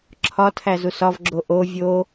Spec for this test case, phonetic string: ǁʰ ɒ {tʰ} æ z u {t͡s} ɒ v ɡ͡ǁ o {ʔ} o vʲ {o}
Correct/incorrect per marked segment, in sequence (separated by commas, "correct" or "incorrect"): correct, incorrect, correct, correct